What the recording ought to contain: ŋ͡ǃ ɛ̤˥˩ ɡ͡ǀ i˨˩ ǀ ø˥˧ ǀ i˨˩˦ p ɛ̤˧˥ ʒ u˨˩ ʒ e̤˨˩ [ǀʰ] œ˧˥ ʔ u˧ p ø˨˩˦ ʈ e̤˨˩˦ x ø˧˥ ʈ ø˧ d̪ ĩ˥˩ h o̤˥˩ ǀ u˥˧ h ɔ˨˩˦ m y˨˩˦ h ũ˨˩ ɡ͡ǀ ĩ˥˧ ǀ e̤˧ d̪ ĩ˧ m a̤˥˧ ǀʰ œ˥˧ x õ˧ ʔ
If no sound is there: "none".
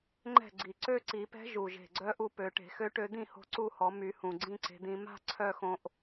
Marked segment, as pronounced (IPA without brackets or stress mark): ɡ͡ǀ